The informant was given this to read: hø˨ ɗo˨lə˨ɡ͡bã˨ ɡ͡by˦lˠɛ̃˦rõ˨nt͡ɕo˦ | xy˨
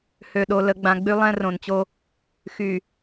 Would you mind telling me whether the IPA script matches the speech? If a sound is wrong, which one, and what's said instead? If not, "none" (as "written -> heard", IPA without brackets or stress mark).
none